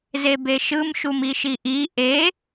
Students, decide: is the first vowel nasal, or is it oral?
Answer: oral